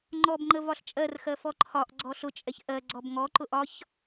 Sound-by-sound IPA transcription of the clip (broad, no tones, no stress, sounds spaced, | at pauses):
ŋ͡ǃ ɔ b ŋ͡ǃ ə v ɒ ɬ t͡ʃʼ ɜ r x ɜ f ɔ ǃʰ ɒ ʔ ɡ͡ǀ ɔ ɬ ʊ t͡ʃʼ ɛ ç ʔ ɜ ɡ͡ǀ ɔ b ŋ ɔ ǃ ʊ ʔ ɒ ç